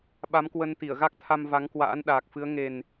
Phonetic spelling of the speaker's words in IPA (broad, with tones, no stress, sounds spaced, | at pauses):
ɓ a˨˦ m k w ə˧ n t̪ i˧˩ ə̯ ɣ a˦˥ k̚ t̪ʰ a˧ m v a˨˦ ŋ k w a̰ː˧˥ n ɗ aː˨˩ k̚ f ɨ˨˦ ə̯ ŋ e˨˩ n